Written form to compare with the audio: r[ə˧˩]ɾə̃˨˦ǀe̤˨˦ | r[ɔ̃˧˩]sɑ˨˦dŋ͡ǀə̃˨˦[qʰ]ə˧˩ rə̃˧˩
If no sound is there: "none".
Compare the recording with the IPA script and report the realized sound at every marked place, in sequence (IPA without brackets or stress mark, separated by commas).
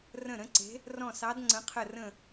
ə̃˧˩, ɔ̃˧˩, qʰ